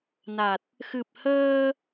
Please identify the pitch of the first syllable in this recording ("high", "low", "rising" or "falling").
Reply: low